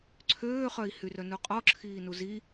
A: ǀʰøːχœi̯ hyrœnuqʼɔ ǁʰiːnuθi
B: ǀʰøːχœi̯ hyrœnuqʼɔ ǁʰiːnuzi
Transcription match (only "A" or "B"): B